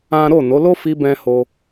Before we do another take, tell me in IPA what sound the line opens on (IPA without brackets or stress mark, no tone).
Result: ã